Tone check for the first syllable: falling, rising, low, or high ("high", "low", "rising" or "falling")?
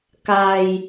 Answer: low